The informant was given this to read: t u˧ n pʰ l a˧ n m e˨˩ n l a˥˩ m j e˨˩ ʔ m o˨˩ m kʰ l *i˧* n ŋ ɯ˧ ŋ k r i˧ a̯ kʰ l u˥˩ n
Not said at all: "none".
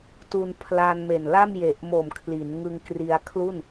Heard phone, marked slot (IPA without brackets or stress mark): i˩˦